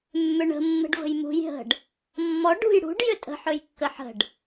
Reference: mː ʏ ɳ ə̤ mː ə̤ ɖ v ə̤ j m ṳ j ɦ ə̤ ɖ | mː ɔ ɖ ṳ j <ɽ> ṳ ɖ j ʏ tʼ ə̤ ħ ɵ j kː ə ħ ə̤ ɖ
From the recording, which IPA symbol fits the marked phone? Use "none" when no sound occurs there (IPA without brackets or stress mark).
ɽ